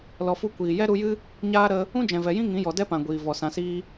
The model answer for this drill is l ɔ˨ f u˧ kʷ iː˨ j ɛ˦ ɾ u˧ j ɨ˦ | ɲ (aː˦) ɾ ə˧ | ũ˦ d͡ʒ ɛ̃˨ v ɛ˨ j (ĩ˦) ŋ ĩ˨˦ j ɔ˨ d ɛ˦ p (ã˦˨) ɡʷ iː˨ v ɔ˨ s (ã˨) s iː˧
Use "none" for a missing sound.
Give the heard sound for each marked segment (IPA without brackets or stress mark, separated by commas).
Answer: aː˦, ĩ˦, ã˨, ã˨